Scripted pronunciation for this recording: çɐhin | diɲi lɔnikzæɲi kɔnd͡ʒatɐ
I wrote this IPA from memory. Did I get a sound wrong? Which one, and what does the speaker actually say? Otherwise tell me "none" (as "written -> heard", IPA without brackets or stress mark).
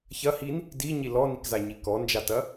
æ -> a